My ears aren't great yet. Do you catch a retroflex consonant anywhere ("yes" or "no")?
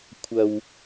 no